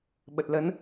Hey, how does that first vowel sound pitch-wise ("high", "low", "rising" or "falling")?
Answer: low